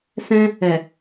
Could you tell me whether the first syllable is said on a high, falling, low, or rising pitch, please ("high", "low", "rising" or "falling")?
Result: high